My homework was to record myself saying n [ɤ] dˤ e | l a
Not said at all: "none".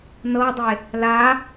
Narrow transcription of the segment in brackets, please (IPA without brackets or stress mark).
ɤ